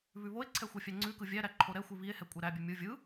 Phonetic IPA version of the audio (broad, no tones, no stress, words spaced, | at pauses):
βʉβoe̯ǀʰɛ xʷɛfʲæŋ͡ǀʉkɯ vʲæɾæ ǃʰoɾɛxʷi βie̯hɛ kʷʼɛɾæbʲʉ mʲɯ vʲɯ